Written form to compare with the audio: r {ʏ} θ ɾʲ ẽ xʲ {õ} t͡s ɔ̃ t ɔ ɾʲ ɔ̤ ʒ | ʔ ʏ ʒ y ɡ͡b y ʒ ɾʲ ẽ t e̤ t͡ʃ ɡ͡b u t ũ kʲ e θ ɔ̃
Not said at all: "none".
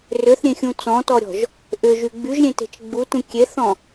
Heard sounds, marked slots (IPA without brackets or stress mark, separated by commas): ʏ, ũ